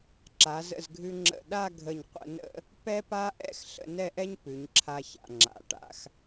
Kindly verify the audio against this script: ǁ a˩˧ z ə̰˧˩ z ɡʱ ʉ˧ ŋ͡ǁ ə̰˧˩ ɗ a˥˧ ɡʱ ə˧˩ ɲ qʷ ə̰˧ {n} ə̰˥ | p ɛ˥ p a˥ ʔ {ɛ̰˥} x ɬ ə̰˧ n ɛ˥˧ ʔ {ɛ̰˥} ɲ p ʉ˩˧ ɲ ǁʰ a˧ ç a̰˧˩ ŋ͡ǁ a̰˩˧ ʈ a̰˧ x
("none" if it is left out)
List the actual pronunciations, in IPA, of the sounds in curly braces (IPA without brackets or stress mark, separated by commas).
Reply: n, ɛ̰˥˧, ɛ˥